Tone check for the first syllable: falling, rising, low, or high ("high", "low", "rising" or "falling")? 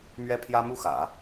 high